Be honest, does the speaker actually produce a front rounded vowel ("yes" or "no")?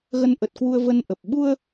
no